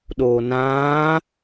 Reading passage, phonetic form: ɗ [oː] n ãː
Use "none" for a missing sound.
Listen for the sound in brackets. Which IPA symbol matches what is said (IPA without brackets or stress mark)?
oː